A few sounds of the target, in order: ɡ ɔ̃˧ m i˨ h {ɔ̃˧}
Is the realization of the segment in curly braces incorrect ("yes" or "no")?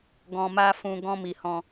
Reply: no